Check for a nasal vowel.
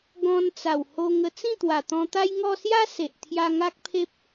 present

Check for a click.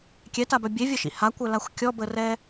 absent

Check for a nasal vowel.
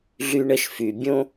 present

